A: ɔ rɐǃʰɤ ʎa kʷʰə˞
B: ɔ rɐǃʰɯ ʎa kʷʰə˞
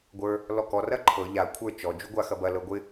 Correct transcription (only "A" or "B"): A